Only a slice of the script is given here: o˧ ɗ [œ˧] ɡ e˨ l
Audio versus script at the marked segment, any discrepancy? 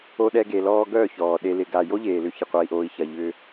yes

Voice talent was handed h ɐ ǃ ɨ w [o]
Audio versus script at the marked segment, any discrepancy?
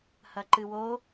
no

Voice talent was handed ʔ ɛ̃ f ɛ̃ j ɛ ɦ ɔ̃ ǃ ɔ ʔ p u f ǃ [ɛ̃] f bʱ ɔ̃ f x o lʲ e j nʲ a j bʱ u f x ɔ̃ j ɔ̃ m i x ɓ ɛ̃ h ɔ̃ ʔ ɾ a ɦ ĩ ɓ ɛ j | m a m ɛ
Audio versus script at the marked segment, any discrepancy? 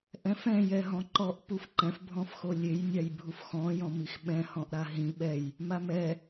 no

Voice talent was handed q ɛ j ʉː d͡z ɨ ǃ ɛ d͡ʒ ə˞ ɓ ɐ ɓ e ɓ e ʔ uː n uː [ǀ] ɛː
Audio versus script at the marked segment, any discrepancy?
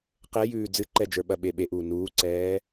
no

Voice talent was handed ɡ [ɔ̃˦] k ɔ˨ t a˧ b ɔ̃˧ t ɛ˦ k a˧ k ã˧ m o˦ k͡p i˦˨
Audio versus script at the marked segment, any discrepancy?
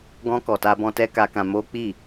yes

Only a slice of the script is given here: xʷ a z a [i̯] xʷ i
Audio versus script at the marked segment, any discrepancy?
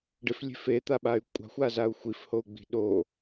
yes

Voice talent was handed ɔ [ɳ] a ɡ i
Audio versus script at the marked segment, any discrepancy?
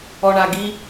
no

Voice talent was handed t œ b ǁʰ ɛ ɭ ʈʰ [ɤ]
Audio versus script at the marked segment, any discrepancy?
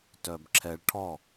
yes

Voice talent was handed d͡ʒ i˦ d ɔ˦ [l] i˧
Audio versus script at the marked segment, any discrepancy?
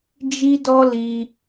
no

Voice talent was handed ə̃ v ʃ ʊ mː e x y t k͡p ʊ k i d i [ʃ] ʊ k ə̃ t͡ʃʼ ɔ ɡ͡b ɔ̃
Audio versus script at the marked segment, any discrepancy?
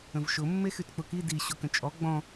yes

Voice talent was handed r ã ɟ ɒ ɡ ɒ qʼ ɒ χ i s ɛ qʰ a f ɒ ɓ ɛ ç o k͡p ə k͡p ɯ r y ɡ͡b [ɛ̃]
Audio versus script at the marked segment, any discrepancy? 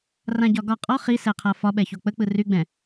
no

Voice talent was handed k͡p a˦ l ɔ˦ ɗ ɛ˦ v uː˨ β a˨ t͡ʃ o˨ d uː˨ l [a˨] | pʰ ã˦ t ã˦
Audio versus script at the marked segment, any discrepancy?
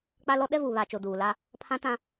yes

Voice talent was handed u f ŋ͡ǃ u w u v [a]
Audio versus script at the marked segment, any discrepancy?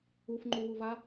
no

